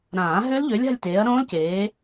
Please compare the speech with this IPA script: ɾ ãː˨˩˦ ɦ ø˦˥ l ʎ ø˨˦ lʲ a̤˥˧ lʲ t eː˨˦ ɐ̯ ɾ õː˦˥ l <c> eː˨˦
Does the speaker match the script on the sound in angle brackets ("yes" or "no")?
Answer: yes